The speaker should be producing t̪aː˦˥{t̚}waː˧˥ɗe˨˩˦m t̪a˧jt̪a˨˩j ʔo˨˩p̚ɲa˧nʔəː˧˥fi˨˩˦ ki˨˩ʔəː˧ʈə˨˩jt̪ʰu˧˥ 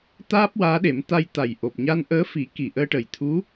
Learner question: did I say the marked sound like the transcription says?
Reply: no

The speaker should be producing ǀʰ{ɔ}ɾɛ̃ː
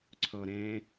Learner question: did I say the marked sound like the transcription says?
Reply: yes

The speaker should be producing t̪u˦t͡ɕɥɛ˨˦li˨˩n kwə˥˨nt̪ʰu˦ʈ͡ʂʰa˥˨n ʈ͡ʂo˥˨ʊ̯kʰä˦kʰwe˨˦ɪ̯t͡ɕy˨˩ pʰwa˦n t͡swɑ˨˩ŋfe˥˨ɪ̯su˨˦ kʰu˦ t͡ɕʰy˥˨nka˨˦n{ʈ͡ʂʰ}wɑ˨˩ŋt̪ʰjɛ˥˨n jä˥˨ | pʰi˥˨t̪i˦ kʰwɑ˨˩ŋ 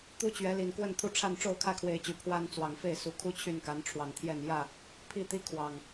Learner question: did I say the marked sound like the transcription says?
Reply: yes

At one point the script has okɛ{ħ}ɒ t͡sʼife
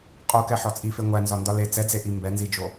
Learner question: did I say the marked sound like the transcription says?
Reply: yes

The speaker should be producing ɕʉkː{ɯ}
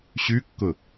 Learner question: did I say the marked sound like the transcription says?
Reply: no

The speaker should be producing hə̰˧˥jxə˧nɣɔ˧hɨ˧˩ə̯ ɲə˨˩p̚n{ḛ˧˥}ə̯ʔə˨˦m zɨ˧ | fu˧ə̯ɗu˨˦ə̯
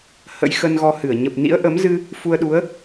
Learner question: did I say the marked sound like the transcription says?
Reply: no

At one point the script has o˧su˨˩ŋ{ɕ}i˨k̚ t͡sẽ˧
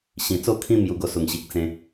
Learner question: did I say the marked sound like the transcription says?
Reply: yes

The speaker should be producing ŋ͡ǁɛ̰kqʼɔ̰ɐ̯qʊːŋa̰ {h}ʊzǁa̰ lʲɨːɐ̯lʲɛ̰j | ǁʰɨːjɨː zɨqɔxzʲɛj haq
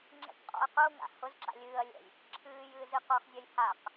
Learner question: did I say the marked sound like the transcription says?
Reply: yes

